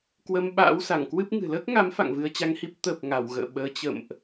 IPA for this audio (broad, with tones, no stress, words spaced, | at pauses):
kwə˧mɓa̰ː˧˥wsa˧˩ŋkwɨ˦˥p̚ ŋɨ̤˨˩ ləː˦˥k̚ŋa˨˦m fa̰˧˨ŋvɨ˧ə̯t͡ɕa˧ŋhi˦˥p̚ t̪ə˨˩p̚ ŋa˧˩wɣə̰ː˧˨ ɓəː˨˦t͡ɕə̰˧˨mʔ